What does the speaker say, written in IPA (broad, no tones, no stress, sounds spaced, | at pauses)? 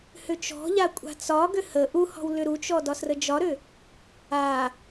h ʏ t͡ʃ ɔ̤ ʎ a kʷʼ a̤ t͡s ɒ ɡ ʏ h ə ʔ u h ɔ̤ w l ʏ ɾ u t͡ʃ ɔ d ɒ s r ə d͡ʒ ɒ ɾ ʏ | a